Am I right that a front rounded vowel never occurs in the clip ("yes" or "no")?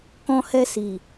yes